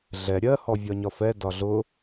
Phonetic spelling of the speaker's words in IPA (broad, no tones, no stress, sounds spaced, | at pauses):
ɮ ɛ ɾʲ ɜ h ɔ vʲ ɒ ɲ ɒ f ɛ d ɒ ɮ ʊ